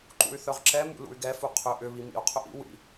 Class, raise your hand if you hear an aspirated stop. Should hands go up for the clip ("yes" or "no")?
yes